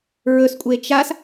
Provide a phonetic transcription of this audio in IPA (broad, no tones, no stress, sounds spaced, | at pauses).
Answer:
ɹ ɵ s kʷʼ e t͡ʃ a s